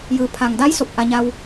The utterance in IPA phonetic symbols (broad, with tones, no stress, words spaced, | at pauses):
jɯː˩˧ pʰa˩ŋda˧˥j so˧˩p̚ʔa˧ ɲa˧w